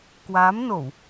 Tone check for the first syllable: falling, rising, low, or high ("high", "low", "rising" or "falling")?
rising